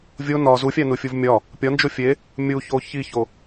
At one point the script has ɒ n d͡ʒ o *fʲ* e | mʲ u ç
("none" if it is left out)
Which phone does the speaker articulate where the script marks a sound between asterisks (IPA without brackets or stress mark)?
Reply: fʲ